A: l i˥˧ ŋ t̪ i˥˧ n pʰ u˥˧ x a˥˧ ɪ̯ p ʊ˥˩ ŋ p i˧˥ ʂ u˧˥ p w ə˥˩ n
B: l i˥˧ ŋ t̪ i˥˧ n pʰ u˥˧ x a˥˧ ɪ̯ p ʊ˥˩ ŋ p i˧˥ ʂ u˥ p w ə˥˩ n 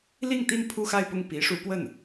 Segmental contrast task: A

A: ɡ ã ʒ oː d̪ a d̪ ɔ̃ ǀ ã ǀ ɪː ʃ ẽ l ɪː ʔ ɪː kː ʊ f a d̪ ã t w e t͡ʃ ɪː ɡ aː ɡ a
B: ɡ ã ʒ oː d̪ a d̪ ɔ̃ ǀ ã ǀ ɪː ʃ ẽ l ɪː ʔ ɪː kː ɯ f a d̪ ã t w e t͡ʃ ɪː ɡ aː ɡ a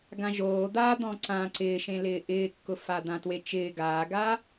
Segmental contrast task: A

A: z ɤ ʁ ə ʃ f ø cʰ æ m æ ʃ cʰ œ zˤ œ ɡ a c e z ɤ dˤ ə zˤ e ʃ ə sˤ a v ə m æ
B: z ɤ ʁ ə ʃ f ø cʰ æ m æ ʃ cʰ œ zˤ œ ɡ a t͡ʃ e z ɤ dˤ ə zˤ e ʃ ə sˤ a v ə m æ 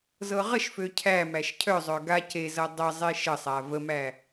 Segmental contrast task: A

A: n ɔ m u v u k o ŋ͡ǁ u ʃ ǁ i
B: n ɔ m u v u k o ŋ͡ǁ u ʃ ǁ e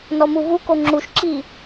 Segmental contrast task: A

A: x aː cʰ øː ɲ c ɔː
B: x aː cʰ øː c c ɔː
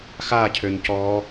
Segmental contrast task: A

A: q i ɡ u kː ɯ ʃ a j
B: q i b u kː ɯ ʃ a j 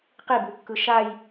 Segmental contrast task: B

